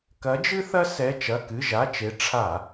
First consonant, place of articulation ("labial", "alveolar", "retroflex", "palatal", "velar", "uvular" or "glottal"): velar